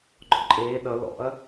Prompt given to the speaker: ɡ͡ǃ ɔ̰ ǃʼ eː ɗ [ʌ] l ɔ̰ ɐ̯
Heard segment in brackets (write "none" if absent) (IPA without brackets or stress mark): ʌ